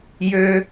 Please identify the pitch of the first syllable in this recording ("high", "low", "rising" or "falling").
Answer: high